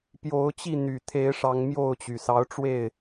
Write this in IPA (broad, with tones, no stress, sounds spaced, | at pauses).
p j o˨˦ ʊ̯ t͡ɕ i˥˨ n̪ y˨˩ t̪ʰ e˨˦ ɪ̯ ʂ ɑ˨˦ ŋ m j o˥˨ ʊ̯ t͡ɕ y˩ s ɑ˨˦ ʊ̯ ʈ͡ʂ w e˥˨ ɪ̯